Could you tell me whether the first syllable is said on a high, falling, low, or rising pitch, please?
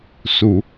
low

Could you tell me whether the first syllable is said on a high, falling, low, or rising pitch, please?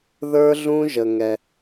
high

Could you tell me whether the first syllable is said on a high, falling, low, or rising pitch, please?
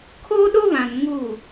high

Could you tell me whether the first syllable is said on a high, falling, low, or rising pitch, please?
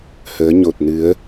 rising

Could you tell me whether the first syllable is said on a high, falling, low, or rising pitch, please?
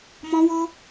high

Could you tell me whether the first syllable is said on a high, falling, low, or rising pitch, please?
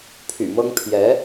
low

